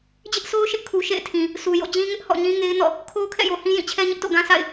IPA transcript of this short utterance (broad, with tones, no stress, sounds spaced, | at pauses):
d͡ʑ ɪ˦ ʔ s o˦ ʊ̯ ʃ ɪ˦ ʔ kʰ u˨ ʃ ḛ˦˨ ɪ̯ tʰ ĩ˨ | s u˨ j o̰˦˨ d͡ʑ ĩ˦ ŋ ɪ˦ ʔ h ɔ̰˦˨ ɲ ĩ˦ ŋ e˦ ɪ̯ n ɔ̰˦˨ | kʰ o˦ ʊ̯ kʰ ɛ̰˦˨ j o˨ h ĩ˦ j ĩ˦˨ t͡ɕʰ ɛ˦ ɲ ɪ˦ ʔ t o̰˦˨ ɡ ã˦ s a̰˦˨ ɪ̯